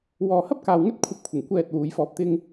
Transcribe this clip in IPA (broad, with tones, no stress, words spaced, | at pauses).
wɔː˨hɐ˥p̚kaː˨w ŋɵ˥t̚ kʷʰɐ˧p̚kʷʰɪ˨˩ŋ kʷɛː˧t̚ wuː˨˧jfɔː˧p̚t̪ɪ˥ŋ